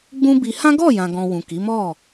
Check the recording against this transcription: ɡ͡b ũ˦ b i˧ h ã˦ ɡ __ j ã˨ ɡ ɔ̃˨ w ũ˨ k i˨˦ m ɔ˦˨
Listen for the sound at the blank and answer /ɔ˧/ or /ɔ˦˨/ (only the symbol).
ɔ˦˨